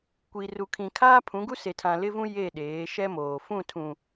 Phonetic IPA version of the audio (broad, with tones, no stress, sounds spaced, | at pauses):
kʷ i˨ r u˨ kʰ ĩ˨ kʰ aː˦ pʰ ũ˨˦ ɡ u˦ s e˨ tʰ ã˨ l ɪ˦ v ũ˦ j e˦˨ ɗ eː˨˦ ʃ ɛ˦ m oː˨ f ũ˦˨ tʰ ũ˨